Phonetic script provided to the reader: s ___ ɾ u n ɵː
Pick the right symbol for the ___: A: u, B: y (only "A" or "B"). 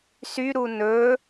B